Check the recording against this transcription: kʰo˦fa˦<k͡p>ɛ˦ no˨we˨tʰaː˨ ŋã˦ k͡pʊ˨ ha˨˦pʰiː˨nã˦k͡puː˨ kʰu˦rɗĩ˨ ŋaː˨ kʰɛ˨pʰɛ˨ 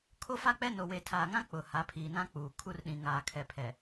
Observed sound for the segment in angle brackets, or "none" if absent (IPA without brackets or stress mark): k͡p